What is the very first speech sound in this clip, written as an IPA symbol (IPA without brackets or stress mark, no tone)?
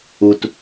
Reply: u